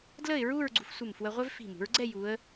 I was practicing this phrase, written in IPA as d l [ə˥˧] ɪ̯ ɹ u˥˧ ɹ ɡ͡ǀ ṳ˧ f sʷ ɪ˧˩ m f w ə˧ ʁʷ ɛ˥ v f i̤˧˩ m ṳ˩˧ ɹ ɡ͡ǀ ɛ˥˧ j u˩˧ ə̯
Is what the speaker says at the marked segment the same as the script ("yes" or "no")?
yes